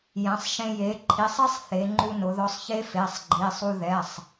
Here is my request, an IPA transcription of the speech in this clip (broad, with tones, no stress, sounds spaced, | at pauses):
j ɛ̃˩˧ sˤ ʃ ẽ˧ j e˩˥ ǃʰ i˩˧˩ sˤ i˦˥ sˤ θ e˩˧ ŋ͡ǃ u˧ n ʊ˩˧ ð ɔ˧ sˤ ç e˦˥ f e˩˧˩ sˤ ɡ͡ǃ i˩˧˩ sˤ u˧ ð ɛ˩˧˩ sˤ